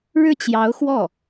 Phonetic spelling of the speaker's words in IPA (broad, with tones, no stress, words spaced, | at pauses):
ɻɻ̩˥˩t͡ɕjɑ˧˥ʊ̯ xwɔ˥˩